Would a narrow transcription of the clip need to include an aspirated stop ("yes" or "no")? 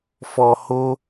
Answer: no